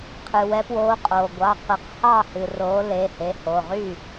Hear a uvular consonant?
yes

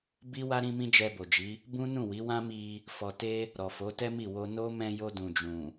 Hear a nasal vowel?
yes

